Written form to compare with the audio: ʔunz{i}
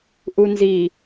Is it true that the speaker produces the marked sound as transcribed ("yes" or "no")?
yes